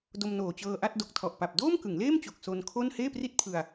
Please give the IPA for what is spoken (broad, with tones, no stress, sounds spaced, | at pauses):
d o˧ m n oː˨˩ t͡ɕ ɤː˧ ʔ a˥˩ t̚ d o˨˩ k̚ tʰ ɔ˨˩ ʔ p a˨˩ p̚ d oː˥˩ m k ɯ˩˦ ŋ l eː˥˩ m t͡ɕ o˨˩ k̚ s o˧ n kʰ o˥˩ n h eː˥˩ p r i˥˩ t̚ pʰ ɯ˧ a̯